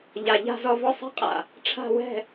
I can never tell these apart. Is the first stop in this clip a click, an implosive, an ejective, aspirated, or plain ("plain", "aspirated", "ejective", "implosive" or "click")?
ejective